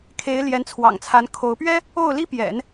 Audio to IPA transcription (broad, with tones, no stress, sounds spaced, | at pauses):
kʰ e˧˥ ɪ̯ l j ɛ˧˥ n t͡sʰ w ɑ̰˨˩ ŋ t͡sʰ a˧˥ n kʰ o˧˥ ʊ̯ p ɥ ɛ˥ | o˥˩ ʊ̯ l i˥ p j ɛ̰˨˩˦ n